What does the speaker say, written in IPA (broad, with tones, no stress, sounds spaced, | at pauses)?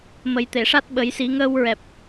m ə˨˩˦ j t̪ e˨˩˨ ʂ a˦˥ t̚ ɓ ə˨˩˦ j s i˨˩˦ ŋ əː˧ w ɹ ɛ˨˩ p̚